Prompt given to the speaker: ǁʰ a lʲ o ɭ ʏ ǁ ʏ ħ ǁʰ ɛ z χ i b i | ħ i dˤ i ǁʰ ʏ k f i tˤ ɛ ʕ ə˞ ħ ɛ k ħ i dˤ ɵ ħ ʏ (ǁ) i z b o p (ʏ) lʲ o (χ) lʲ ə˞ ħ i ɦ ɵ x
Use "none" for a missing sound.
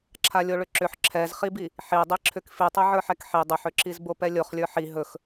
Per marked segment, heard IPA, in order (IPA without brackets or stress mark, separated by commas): ǁ, ɛ, χ